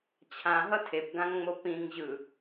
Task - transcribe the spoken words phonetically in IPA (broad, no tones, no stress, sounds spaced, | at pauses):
t͡ɕʰ ã ɦ ʌ tʰ e p ɡ ã ŋ ŋ͡m o p ĩ ŋ ʑ ɯ